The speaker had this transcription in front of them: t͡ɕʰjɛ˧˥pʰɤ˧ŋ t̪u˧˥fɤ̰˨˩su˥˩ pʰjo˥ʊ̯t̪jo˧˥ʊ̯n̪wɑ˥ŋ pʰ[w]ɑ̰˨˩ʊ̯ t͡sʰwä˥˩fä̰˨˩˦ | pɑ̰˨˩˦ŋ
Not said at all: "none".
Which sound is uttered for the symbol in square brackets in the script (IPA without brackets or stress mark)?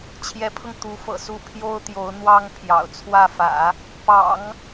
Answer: j